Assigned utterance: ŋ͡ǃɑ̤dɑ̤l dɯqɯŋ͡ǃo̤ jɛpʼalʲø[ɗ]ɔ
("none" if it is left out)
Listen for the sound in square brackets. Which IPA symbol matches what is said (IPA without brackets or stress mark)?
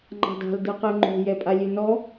n